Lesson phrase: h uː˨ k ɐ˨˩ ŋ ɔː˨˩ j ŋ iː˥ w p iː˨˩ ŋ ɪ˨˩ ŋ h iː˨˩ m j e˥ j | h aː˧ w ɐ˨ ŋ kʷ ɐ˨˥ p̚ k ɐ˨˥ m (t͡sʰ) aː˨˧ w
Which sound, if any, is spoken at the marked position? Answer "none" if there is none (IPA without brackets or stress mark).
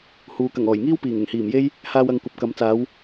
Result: t͡s